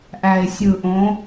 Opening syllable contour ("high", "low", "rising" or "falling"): low